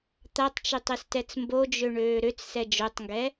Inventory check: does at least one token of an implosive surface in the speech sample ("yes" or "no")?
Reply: no